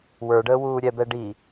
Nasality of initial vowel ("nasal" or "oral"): oral